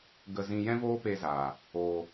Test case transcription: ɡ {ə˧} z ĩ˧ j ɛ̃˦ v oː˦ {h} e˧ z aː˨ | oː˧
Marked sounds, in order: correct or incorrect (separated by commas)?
correct, incorrect